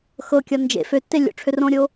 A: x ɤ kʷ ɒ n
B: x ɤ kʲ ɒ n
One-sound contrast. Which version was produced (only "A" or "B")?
B